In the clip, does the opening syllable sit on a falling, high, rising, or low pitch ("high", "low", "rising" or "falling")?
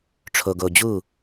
low